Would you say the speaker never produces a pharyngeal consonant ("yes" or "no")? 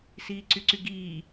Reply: yes